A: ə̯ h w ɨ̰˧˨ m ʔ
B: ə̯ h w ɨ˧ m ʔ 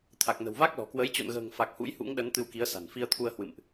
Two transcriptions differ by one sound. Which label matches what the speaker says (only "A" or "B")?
A